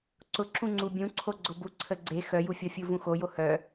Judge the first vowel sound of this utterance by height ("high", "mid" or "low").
high